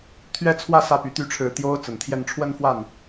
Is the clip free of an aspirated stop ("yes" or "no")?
no